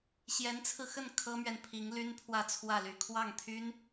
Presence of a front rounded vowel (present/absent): present